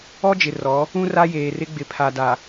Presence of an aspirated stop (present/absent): present